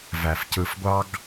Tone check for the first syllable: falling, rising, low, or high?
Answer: low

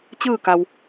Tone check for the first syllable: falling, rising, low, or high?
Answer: falling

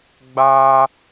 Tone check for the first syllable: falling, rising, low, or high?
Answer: high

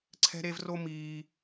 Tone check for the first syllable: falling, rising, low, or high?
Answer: high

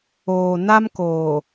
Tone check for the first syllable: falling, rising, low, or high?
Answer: low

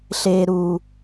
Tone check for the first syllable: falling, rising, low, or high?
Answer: high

